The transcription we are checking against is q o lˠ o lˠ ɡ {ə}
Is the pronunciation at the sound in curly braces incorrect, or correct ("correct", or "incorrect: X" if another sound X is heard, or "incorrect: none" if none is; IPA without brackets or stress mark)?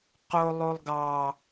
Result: incorrect: ɑ